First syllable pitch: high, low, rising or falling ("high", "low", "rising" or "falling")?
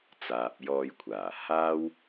low